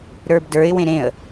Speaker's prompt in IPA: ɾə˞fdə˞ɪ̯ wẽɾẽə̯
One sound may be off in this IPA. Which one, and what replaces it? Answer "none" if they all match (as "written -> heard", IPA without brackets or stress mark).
f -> b